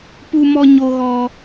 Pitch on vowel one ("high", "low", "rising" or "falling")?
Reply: high